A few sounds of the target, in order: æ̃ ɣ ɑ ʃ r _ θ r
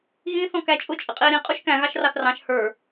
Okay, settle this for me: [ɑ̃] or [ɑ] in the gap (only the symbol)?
ɑ